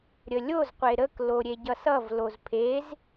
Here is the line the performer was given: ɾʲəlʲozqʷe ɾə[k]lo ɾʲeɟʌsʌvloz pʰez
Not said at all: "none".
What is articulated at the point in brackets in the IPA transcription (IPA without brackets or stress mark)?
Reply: k